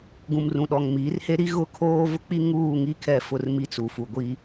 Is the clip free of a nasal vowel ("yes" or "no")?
no